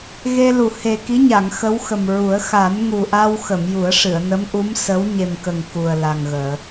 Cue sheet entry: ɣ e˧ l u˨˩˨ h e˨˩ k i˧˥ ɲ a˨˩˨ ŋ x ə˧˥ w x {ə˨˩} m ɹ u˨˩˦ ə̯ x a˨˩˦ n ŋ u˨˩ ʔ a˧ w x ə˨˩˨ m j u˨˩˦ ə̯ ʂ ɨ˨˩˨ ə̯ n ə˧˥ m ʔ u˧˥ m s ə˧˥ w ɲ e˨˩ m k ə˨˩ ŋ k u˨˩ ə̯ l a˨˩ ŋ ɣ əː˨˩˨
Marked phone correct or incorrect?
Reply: correct